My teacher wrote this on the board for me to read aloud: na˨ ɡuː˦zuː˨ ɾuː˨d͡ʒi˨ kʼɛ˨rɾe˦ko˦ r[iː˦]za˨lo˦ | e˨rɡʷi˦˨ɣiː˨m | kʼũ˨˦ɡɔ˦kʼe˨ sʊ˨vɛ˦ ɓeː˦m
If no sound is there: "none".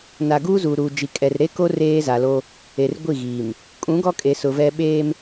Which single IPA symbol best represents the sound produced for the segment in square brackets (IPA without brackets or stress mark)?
eː˦